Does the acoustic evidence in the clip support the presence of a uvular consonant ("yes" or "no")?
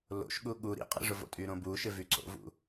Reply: yes